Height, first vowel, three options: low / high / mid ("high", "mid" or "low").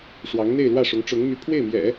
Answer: low